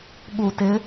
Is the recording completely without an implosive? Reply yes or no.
no